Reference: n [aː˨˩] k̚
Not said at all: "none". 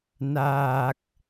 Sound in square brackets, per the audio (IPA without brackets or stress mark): aː˨˩